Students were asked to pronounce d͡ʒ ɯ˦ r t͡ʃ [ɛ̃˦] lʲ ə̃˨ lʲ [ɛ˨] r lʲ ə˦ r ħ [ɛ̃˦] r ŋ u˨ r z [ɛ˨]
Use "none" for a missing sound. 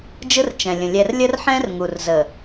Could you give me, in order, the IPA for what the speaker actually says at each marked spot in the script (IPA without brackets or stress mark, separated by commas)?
ɛ̃˨, ɛ˨, ɛ̃˦, ə˨